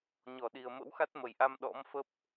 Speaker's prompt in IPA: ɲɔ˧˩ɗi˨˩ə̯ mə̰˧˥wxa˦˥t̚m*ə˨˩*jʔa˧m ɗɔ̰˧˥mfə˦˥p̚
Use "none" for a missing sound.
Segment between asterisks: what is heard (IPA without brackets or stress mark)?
ə˨˩